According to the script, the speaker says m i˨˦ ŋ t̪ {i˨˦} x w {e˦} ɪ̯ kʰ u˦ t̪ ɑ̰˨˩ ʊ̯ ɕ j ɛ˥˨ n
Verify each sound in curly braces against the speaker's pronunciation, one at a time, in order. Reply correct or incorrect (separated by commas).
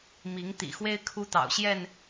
incorrect, correct